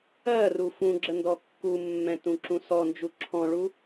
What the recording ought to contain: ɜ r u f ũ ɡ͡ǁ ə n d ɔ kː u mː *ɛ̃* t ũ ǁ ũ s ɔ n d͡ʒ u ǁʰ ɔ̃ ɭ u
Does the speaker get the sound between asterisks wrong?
no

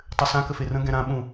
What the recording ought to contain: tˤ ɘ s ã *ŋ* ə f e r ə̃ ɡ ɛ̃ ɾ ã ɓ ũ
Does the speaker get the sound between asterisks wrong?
yes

